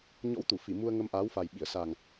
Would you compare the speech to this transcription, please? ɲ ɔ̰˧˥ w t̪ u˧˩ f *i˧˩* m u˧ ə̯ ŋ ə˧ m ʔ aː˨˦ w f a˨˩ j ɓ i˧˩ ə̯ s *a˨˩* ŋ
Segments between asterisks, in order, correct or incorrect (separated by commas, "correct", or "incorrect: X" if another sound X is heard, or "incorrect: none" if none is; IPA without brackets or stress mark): correct, correct